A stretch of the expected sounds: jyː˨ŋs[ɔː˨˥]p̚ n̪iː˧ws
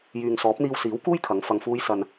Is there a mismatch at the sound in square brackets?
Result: no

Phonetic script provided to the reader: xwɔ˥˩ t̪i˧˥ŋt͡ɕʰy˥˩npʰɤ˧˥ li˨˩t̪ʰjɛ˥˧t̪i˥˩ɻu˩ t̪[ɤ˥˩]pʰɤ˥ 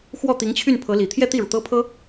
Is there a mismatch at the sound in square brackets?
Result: yes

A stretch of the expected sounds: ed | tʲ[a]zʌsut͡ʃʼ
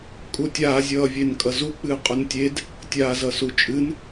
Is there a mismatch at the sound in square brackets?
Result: yes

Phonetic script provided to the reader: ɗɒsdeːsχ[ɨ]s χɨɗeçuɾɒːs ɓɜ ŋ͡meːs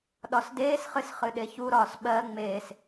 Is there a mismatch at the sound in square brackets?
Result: no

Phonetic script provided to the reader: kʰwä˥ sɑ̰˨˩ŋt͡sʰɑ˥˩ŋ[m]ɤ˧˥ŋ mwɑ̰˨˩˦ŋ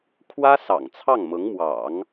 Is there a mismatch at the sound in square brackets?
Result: no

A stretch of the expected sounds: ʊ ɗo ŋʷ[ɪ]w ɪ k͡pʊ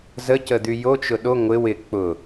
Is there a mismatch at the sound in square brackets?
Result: no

